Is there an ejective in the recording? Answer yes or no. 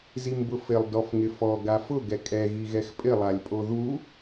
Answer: yes